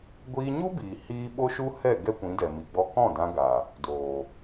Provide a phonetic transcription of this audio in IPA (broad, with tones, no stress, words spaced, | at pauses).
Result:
ɡʷiː˧ɲu˦biː˨ hiː˦ ɓo˦ʃu˦hɛ˦˨ ɡɛ˦kʷĩ˨˦dɛ˨ mi˨ɡ͡bɔ˧kɔ̃˦˨dã˧ ɡa˨ | doː˨